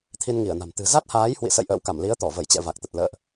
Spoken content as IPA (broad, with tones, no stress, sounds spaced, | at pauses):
t̪ʰ i˧ n ŋ i˧˩ ə̯ n a̤˨˩ m t̪ ɨ̤˨˩ z a˦˥ t̚ h aː˨˦ j h w ḭ˧˨ s ə̰˧˨ j ʔ ə̰ː˧˨ w k a˧˩ m l i˨˦ ə̯ t̪ ɔ˧˩ v ə˧˩ j t͡ɕ ɛ̰˧˨ v a˨˩ k̚ t̪ ə˨˩ t̚ l ə̰ː˧˨ ʔ